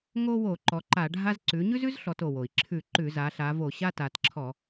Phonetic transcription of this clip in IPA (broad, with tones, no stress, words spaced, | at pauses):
ŋo˦wo˧˩˧ ǃɔ˩˧ǃa˧˩˧ɖʱa˦z ǀʉ˩˧ɲʉ˦zʉ˦z ɬɔ˩˧to˩wo˩i̯ ǁʰʉ˧˩˧ ǃʉ˧˩˧za˩˧ ɬa˩˧ vo˧˩˧ɕa˦ta˩˧t ǁʰɔ˧˩˧